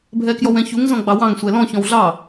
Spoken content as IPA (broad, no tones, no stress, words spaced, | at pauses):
bʱɛkjɔwɛ̃çuŋ zɔ̃ɡ͡bɑwɑ̃ŋ sʷɛlɔ̃ çɔ̃wɮɑ